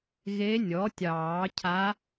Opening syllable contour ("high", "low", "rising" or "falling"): rising